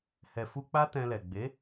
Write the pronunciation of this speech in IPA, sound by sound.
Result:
h ɛ˨ f u˧ k͡p a˦ t ɛ̃˧ l ɛ˨ ɡ͡b e˨˦

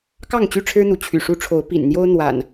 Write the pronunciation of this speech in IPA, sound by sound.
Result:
k ɑ˥˨ ŋ t͡ɕ y˥˨ ʈ͡ʂʰ ɻ̩˦ n̪ u˨˦ t͡ɕʰ y̰˨˩ ʂ u˨˦ ʈ͡ʂʰ o˨˦ ʊ̯ p ḭ˨˩ n n̪ j o˦ ʊ̯ n̪ w a̰˨˩ n

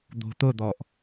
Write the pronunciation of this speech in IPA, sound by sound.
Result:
d̪ o̤ t̪ ʊ d̪ ɔ ʔ

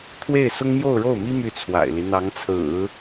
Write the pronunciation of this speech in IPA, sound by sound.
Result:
t̪ʰ w e˥˩ ɪ̯ s ʊ˥ ŋ m j o˥˧ ʊ̯ ɻ o˥˩ ʊ̯ m i˥ m y˥˩ t͡sʰ w a̰˨˩ ɪ̯ l i˦ n̪ ɑ˧˥ ŋ t͡sʰ ɹ̩˨˩˦

